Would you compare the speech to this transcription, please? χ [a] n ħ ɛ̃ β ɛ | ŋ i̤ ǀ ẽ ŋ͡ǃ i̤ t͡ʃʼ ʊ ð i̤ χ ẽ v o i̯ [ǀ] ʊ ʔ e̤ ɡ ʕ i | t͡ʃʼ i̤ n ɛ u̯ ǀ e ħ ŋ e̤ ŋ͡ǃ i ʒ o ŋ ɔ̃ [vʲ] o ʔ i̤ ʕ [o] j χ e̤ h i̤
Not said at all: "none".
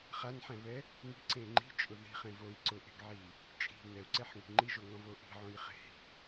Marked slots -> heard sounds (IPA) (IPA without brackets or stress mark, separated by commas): a, ǀ, v, õ